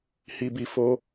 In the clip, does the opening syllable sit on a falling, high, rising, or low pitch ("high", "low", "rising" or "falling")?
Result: low